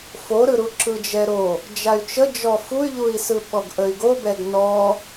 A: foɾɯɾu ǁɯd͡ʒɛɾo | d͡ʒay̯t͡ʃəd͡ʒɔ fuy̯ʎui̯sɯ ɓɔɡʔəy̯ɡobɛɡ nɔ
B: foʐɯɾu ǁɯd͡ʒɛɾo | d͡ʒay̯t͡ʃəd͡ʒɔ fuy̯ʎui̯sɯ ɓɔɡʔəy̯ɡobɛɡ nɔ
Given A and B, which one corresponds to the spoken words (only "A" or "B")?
A